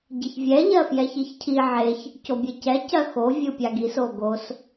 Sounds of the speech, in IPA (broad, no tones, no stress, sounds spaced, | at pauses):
ɟ ɪ ç vʲ ɛ ʎ ɜ f j ɛ ç i ç cʰ i ʕ e ç | c o bʲ e c ɛ c ɜ x o vʲ ɯ pʲ a ɡ i s o ɡ o s